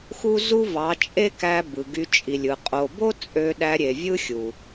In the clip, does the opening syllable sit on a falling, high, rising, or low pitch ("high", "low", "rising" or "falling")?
high